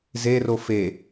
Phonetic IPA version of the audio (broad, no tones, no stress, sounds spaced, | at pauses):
z e r o f e